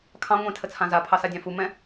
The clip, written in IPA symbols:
kʰ ɑ̃ ŋʷ ẽ tʰ ə t͡sʰ ã z a pʰ ɑ s a dʲ ɑ̃ f u m ɛ̃

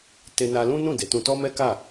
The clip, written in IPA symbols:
t e˧ n a˧ l ũ˦ n ũ˦˨ d e˨˦ t ũ˧ t ɔ˦ m ɛ˦ k a˦˨

